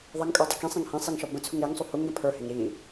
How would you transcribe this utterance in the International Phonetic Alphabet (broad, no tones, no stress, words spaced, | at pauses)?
ðˤɐŋkʼə˞dˤə kĩsˤẽŋ hẽsˤiŋʃɔ bə̃t͡sʰuŋ ɾeŋsˤu huŋɡə̃ pʰə˞heŋ ɾi